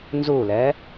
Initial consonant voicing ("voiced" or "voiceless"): voiced